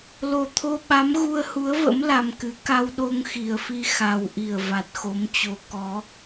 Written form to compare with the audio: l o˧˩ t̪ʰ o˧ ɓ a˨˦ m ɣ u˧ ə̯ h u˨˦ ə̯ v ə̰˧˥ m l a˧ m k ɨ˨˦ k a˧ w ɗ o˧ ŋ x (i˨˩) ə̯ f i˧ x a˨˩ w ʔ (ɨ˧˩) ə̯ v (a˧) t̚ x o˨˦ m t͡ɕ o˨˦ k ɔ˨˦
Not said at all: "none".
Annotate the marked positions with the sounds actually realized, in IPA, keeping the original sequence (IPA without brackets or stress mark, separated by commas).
i˨˩, i˧˩, a˨˩